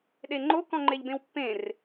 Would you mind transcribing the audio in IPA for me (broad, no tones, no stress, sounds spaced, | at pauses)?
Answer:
ɗ e ŋ͡ǃ o k ɔ̃ ŋ͡ǃ e ʎ b ẽ w pː ẽ r